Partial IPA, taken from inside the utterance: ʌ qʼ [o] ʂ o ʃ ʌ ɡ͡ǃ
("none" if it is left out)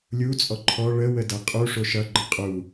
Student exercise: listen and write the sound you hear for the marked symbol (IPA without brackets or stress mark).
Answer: u